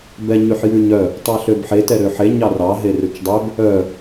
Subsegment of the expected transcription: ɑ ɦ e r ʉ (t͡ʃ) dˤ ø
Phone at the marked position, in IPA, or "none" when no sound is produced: t͡ʃ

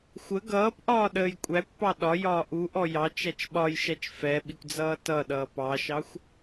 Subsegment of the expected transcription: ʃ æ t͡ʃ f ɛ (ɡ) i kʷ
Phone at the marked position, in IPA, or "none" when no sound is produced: ɓ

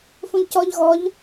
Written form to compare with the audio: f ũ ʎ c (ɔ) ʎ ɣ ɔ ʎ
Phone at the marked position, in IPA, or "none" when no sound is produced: ɔ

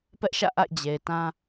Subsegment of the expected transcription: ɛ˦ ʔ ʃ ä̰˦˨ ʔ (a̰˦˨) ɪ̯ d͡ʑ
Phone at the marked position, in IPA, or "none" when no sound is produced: a̰˦˨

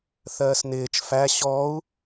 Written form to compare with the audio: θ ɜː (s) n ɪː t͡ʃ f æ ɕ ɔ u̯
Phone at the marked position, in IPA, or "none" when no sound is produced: s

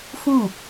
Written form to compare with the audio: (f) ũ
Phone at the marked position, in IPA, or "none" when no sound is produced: f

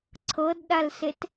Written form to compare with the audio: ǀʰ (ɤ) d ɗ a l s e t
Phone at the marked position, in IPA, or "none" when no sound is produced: ɤ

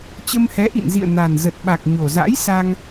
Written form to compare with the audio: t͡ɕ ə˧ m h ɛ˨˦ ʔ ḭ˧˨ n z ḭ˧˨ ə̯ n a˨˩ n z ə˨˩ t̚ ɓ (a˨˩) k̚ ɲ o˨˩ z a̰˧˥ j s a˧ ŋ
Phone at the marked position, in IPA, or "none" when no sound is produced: a˨˩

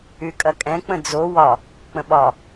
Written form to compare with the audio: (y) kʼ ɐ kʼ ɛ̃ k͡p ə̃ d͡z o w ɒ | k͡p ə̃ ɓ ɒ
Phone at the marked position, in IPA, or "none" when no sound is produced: y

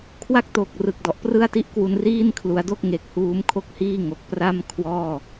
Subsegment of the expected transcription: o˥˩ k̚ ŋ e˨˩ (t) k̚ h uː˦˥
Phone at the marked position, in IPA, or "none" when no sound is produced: none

